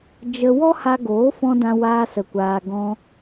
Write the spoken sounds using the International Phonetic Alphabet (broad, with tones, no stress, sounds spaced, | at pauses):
d͡ʒ ə˧ w ɔ˦ h a˧ ɡ oː˨˦ f ɔ̃˧ d ã˦ w aː˦ s ə˧ kʷ aː˧ ɡ ɔ̃˧